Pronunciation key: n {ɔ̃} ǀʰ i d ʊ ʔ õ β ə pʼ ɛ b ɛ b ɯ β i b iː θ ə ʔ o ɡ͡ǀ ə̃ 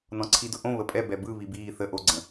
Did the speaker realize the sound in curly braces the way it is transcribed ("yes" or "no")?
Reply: yes